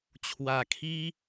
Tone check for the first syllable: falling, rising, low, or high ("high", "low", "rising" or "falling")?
low